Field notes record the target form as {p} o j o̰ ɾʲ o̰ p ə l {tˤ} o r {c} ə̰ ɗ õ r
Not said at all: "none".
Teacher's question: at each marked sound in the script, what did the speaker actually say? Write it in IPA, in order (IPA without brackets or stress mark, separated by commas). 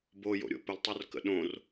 b, tˤ, k